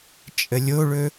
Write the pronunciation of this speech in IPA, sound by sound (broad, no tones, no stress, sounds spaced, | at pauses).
t͡ʃʼ ə lʲ o ɭ ɵ